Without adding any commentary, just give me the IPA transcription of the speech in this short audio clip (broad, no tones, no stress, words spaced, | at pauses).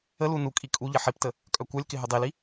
əlu nukʼi kʼuʎɪ ħiptə | kʼœkʷœlʲkɪ ɦɵdˤili